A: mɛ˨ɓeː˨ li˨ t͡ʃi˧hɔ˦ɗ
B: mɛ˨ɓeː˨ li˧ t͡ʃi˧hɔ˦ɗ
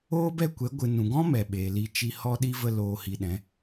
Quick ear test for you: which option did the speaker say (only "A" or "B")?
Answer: A